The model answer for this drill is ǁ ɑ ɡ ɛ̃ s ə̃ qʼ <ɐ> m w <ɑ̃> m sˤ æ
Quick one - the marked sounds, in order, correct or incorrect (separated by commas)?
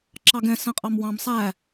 incorrect, correct